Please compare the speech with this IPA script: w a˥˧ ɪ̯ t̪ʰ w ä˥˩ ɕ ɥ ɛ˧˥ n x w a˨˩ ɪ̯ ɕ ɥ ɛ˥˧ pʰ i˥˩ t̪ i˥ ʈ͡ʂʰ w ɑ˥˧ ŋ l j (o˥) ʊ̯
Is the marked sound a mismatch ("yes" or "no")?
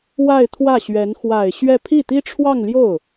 yes